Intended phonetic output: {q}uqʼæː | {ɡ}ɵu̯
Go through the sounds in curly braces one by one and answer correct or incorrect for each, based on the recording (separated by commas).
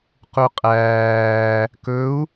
correct, incorrect